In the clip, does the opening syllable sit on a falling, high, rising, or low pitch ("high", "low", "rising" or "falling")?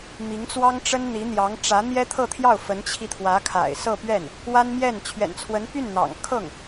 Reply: rising